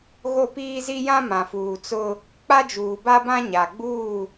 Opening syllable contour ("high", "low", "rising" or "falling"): falling